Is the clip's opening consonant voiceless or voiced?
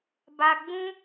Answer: voiced